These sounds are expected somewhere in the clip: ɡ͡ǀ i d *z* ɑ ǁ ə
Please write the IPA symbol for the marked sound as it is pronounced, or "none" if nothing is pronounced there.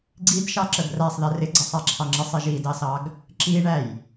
ʃ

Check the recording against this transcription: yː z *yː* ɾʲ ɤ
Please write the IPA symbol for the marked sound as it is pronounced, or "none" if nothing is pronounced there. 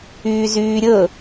yː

